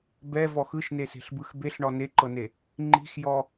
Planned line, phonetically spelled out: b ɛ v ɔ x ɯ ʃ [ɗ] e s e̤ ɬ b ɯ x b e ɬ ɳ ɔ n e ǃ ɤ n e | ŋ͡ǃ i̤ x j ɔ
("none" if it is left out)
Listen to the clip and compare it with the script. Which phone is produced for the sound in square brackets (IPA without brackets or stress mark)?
n